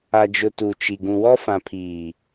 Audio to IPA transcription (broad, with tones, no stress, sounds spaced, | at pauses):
a˨ d͡ʒ ʊ˨ t u˨ t͡ʃ i˨ ɡ ũ˨ w ɔ˦ f ã˨ pʰ iː˨